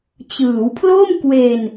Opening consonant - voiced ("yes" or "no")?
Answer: no